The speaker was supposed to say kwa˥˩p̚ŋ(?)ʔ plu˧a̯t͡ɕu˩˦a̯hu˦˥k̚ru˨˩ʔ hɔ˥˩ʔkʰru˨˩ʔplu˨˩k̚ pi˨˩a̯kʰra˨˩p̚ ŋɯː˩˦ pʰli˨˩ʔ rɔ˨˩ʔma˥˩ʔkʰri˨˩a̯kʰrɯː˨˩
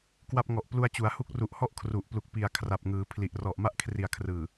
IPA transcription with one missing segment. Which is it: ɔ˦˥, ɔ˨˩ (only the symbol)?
ɔ˨˩